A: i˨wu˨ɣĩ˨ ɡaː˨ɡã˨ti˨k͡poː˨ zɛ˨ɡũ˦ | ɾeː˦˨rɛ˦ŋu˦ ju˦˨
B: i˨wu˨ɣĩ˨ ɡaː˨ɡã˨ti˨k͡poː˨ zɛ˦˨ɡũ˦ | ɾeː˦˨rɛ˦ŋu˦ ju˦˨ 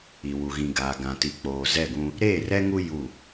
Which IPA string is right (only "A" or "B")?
B